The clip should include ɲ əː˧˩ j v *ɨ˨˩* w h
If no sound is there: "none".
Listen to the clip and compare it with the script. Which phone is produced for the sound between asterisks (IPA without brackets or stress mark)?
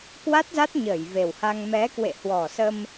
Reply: e˨˩